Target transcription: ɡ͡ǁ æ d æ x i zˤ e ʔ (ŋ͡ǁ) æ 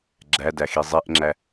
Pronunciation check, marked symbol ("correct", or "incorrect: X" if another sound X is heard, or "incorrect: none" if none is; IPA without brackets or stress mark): correct